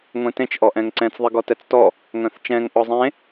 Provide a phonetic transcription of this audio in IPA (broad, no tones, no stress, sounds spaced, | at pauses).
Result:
ŋʷ ẽ t ẽ t͡ʃ ʔ ɔ ʔ ɛ̃ ŋ ǀ ɛ̃ t͡s ðˤ e ɡ ɔ t ɛ t͡s t ɔ | ŋ œ̃ θ t͡ʃ ɛ̃ ŋ ʔ ɔ zˤ ẽ